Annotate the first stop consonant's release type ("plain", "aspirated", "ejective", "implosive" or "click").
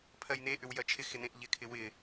aspirated